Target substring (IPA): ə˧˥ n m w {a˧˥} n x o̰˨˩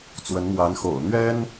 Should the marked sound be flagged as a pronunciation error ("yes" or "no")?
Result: no